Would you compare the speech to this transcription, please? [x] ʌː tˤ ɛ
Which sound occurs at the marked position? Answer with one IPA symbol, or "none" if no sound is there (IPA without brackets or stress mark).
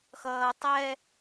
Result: x